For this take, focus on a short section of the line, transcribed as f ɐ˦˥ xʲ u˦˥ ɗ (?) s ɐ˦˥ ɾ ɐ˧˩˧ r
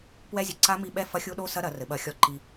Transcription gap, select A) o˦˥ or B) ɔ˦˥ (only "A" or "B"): A